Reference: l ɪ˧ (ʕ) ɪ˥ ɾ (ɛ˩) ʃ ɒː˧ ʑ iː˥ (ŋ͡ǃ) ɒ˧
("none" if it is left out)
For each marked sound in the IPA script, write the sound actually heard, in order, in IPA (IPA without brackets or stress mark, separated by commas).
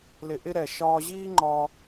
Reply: ʔ, ɛ˩, ŋ͡ǃ